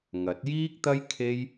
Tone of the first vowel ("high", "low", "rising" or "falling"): rising